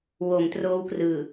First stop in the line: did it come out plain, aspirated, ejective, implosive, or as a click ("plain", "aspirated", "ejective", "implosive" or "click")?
plain